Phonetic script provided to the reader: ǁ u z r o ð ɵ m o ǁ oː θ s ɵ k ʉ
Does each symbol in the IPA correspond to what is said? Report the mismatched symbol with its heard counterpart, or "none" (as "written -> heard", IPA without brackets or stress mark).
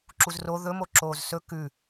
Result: θ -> z